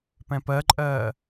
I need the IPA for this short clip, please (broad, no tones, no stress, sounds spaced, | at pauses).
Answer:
p ɛ̃ p ɜ ǃʼ ɜː